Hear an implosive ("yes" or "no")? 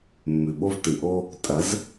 yes